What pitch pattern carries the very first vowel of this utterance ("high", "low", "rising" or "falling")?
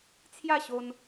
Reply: falling